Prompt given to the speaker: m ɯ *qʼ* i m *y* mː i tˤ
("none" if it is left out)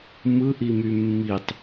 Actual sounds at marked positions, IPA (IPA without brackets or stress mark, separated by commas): ʔ, y